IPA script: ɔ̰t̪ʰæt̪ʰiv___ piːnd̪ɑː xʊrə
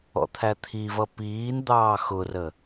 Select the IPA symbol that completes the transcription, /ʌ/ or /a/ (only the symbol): ʌ